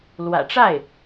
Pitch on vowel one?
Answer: low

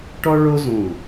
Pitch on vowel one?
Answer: high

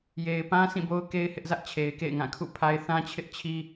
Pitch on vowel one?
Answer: low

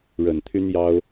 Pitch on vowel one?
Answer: low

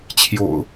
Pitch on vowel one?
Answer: low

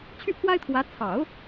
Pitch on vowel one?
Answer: falling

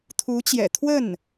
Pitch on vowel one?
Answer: rising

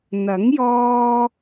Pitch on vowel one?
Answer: rising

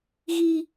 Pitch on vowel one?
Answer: high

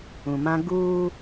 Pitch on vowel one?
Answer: low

